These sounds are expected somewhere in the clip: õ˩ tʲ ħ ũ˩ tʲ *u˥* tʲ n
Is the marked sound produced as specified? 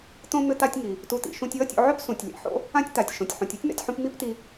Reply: yes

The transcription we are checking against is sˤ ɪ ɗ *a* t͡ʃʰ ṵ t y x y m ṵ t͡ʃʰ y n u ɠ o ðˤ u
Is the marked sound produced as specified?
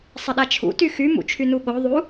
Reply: yes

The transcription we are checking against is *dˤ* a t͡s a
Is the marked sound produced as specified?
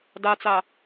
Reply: no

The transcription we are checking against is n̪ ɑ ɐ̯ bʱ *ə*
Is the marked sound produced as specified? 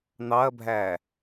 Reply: no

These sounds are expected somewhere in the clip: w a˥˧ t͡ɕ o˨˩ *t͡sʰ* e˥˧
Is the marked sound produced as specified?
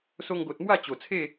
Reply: yes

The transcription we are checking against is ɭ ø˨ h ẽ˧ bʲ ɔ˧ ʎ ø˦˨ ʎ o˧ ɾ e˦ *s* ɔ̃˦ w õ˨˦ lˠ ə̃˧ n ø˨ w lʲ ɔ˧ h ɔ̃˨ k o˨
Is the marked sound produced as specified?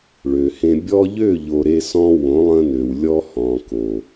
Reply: yes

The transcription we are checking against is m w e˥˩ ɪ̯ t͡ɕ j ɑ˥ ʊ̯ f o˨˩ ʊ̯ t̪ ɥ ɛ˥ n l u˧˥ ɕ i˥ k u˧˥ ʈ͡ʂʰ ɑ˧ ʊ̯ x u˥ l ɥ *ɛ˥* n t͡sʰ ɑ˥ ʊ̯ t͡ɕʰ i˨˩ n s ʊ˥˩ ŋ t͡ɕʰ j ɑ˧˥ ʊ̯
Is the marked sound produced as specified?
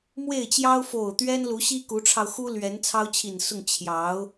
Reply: no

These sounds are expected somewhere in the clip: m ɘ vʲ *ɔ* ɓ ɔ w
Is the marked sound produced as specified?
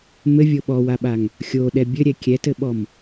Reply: no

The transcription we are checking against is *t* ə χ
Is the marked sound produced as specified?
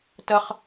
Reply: yes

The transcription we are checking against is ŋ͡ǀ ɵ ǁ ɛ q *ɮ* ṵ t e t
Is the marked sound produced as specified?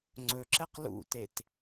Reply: no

